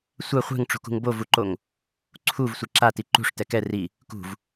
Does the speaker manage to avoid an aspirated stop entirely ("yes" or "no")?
no